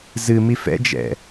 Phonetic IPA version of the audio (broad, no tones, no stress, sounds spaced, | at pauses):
z ɨ m i f ɛ̰ d͡ʒ ɛ̰